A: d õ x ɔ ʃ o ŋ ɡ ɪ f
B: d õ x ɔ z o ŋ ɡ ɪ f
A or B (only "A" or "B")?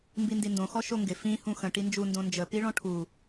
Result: A